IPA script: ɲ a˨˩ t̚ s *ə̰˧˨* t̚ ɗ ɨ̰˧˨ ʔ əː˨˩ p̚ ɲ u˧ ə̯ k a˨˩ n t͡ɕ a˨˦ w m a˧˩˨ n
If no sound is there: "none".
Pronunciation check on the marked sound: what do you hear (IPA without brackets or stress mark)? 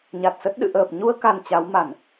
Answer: ə˦˥